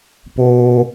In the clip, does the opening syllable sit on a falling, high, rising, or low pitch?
high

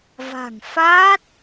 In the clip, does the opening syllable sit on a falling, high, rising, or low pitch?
low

